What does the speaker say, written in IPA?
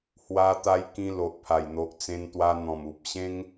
h w a˧ t̪ a˧ j k ĩ˧ l o˨ ʔ pʰ a˨˩ j n̪ o˨ ʔ t͡s ẽ˧ n t̪ w a˧ n̪ ɔ̃˨˩ m u˨ p̚ ɕ ẽ˦ ŋ

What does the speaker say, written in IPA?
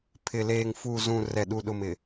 pʰ ɪ˨ l eː˨ ŋ f u˨ z ũ˨ r ɛ˨ ɗ u˨ ɗ ʊ˨ m ɪ˨

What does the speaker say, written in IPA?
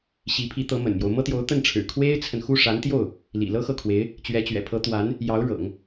ɕ i˧˥ pʰ i˧˥ t̪ ɤ˧˥ m ə̰˨˩ n m j o˦ ʊ̯ m ɤ˥ t̪ j o˧˥ ʊ̯ t̪ ə˥˩ n ʈ͡ʂʰ ɻ̩˨˩ kʰ w e˥ ɪ̯ t͡sʰ ə˨ n x u˥˩ ʂ a˧˥ n t̪ j o˥˩ ʊ̯ | l ḭ˨˩ l ɤ˥ x ɤ˥˩ kʰ w e˧˥ ɪ̯ | t͡ɕ ɥ ɛ˧˥ t͡ɕ ɥ ɛ̰˨˩ pʰ ɤ˧˥ t̪ w a˧˥ n | j ɑ˧˥ ʊ̯ ɻ ɤ̰˨˩˦ ŋ

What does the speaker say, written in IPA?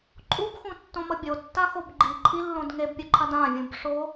ǃʼ u b x ũ tː õ m ʌ bʲ o tː a x o b ɡ͡ǃ i ǃʼ i lː õ d ŋ e b pʲ u ǃʰ a d ã vʲ ũ b ʂ o

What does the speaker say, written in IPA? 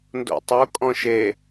n d o̰ tˤ o kʼ ɔ̃ ʃ e

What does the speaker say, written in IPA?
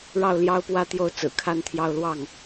ɻ ɑ˥˩ ʊ̯ l j ɑ˥ ʊ̯ p w ä˥ t̪ j o˥˩ ʊ̯ t͡s ɹ̩˨˩ kʰ a˥ n t̪ʰ j ɑ˥˧ ʊ̯ l w ɑ˥˩ ŋ

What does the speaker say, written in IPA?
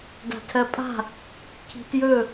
d a̤ tʰ ɜ pʼ a̤ | kʰ i̤ t j ɵ

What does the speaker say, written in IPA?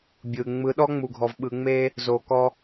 bʲ ɯ˨ ŋ͡m ɯ˨˦ ɗ ɔ˦ ŋ͡m u˨ ɡʱ ɔ˨ v ɓ ɯ˨ ŋ͡m e˦ | z o˨ k ɔ˦

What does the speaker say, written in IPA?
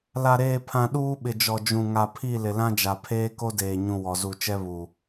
l a˨ ɾ eː˨ pʰ ã˨ ɗ uː˦ ɓ ɪ˨ d͡ʒ ɔ˨ d͡ʒ ũ˨ ŋ a˨ pʰ i˦˨ l ɪ˨ l ã˦ d͡ʒ a˨ pʰ eː˦ k o˦ d eː˨ ɲ ũ˨ w ɔ˨ z u˦˨ t͡ʃ ɛ˦ β u˨

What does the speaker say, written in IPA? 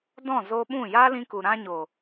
d ɔ̃˦˨ z o˧ ɓ ũ˦˨ j a˦ l ĩ˧ k u˨ ɾ ã˧ ɲ o˨

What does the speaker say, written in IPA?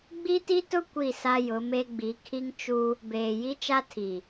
ɡ͡b i˦ t i˦ t ʊ˦ kʷ i˦˨ s a˦ j ʊ˨˦ m e˦ ɡ͡b i˨˦ kʰ i˦ ŋ t͡ʃ u˦ | b eː˨ j i˦ t͡ʃ a˦ tʰ i˨

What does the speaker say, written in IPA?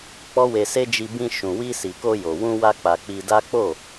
k͡p ɔ˦ w e˧ s e˦ d͡ʒ i˧ b ĩ˧ ʃ ũ˨ w i˧ s i˨ k o˧ j o˨ w ũ˧ w a˧ k͡p a˨ k͡p i˧ d a˦ k͡p o˦˨

